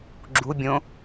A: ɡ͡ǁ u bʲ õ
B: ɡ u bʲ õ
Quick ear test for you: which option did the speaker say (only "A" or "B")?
A